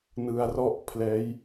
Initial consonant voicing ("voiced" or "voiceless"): voiced